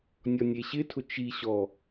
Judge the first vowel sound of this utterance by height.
mid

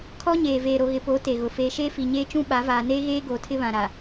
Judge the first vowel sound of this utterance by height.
mid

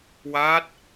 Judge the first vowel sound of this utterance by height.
low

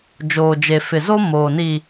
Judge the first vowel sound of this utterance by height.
mid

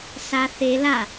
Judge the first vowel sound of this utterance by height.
low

